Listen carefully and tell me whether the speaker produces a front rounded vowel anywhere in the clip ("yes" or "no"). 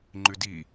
no